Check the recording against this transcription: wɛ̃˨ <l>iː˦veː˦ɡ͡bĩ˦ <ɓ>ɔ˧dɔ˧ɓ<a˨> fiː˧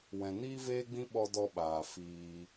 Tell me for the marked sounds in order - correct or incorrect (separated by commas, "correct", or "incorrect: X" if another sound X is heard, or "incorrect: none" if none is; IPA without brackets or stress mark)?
incorrect: n, correct, incorrect: aː˨